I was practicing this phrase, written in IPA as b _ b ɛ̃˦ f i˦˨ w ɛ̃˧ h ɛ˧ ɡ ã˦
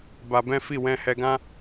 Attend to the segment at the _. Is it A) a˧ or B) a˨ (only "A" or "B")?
A